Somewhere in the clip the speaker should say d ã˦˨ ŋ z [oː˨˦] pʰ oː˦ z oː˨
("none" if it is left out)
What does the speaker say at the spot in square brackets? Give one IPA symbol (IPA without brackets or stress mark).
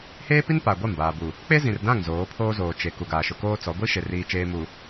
oː˨˦